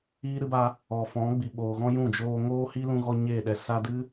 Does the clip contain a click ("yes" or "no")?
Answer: no